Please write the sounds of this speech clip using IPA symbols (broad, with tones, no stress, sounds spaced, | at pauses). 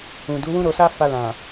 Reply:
ũ˨ d u˨˦ w ũ˦ ɾ o˧ s a˦ f a˧ l ã˨